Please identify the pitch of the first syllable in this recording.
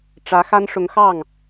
rising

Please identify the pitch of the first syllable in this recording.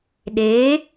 rising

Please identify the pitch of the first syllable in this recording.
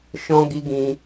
high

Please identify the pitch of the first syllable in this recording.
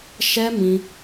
high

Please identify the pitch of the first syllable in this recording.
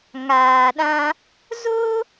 low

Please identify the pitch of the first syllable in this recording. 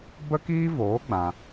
high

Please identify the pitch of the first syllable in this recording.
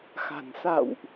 low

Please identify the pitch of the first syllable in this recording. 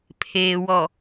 low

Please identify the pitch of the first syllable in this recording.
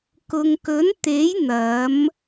low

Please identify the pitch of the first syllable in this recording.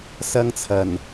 high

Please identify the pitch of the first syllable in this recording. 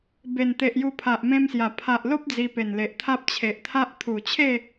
low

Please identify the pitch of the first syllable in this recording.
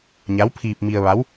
rising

